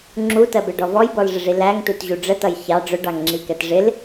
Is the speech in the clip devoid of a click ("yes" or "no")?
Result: no